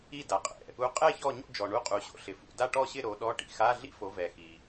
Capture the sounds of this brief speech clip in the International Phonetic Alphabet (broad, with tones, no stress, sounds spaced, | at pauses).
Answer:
i˥˨ d a˨ qʼ ɛ̰˨ | u˨˦ qʼ ɛ˥˨ ç ɔ˥˨ ɲ o̰˥˨ d͡ʒ ɔ˨ ɳ u˧˥˧ qʼ u˨˦ ɕ o̰˥ ɬ ɪ˨ f ṵ˨ d a˥˨ ʈ ɔ˥˨ ɕ ɪ˥˨ ɾ o˨˦ ɗ ɔ˧˥˧ ʈ ḭ˨ x a˧˥˧ ɮ ḭ˥ f o˨˦ v ɛ˨ x i˨